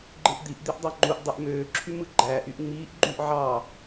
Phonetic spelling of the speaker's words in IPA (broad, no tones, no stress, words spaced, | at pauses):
ɡ͡ǃɯʔd̪iʔ d̪iʔdˤɑŋ͡ǃuʔ dˤyʔmøː ǁʰymɯɡ͡ǃæːʔ yʔŋ͡miːʔ ɡ͡ǃyʔ ʕɑ